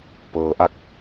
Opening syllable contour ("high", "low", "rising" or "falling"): low